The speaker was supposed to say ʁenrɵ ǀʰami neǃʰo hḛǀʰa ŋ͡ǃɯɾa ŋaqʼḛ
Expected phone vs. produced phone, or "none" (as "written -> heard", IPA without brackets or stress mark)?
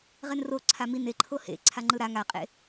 ɵ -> o